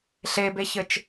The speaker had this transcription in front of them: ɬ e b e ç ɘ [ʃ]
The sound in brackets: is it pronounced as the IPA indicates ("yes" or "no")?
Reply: no